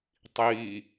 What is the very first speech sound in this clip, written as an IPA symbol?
tˤ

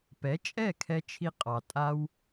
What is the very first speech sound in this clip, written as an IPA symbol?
p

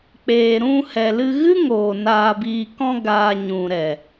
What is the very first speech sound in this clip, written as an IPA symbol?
k͡p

